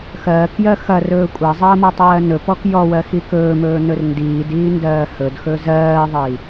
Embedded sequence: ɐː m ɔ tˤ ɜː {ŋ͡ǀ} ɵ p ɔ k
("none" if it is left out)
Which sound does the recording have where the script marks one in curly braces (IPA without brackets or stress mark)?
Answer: n